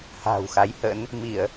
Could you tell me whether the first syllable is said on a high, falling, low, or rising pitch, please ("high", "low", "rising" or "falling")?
low